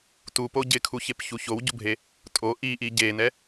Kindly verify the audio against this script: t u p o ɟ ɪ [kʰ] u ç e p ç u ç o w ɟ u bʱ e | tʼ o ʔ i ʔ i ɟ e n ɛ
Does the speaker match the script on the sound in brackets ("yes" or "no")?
yes